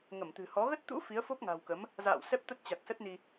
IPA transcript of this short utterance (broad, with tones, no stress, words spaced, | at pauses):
ŋə˧˩mt̪ɨ̤˨˩ hɔ˨˦ ɣə˦˥t̚t̪ṵ˧˥ fi˨˦ə̯fo˦˥p̚ŋa̤˨˩wkə˨˦m | za̰ː˧˨w sɛ˦˥p̚t̪ə˦˥t̚t͡ɕa˨˩k̚ sə˦˥t̚ni˧